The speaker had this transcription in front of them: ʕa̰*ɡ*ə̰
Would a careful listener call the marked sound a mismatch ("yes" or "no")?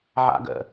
no